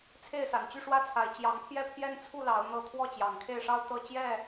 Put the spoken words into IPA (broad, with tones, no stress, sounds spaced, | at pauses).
t͡sʰ e˥˨ ɪ̯ s a˨˩ n t͡ɕ y˥˨ ʂ w ä˥˨ t͡sʰ a˨˦ ɪ̯ t͡ɕ j ɑ˨˦ ŋ pʰ j ɛ˦ pʰ j ɛ˦ n t͡sʰ u˥˨ l ɑ˨˦ ʊ̯ n̪ ɤ˦ t̪ʰ w ɔ˥˨ t͡ɕ j ɑ˨˩ ŋ kʰ e˥˨ ɪ̯ ʂ ɑ˦ ʊ̯ t̪ ɤ˦ t͡ɕ j ɛ˥˨